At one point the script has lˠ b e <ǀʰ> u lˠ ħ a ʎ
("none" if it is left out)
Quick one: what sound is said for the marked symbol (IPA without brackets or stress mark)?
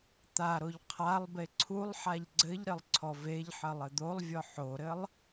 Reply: ǀʰ